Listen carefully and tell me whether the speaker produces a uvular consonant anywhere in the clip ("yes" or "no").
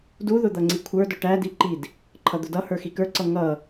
no